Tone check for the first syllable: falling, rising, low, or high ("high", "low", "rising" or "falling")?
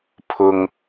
high